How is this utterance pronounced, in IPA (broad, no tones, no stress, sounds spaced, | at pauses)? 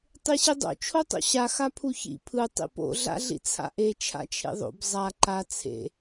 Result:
tˤ e ɕ i dˤ o̰ t͡ʃʰ o tˤ o̰ ɕ a x a pʰ u ç ḭ pʰ ɯ tˤ ḭ p o̰ ɮ a̰ ɮ ḭ t͡sʰ a̰ ʔ e t͡ʃʰ a̰ t͡ʃʰ ḛ ðˤ o̰ b zˤ a ǃ a t͡sʰ ḛ